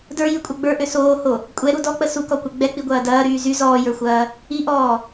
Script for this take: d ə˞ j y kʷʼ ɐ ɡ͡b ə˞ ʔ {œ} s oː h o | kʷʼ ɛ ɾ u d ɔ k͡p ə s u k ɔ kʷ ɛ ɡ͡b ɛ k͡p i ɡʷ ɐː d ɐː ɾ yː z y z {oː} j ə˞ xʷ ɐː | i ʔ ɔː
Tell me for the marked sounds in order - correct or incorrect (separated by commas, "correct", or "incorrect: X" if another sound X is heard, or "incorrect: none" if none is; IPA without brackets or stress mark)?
incorrect: ø, incorrect: ɔː